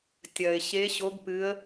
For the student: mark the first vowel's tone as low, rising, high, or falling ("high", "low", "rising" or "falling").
low